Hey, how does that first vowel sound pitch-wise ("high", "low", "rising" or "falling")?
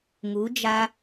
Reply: rising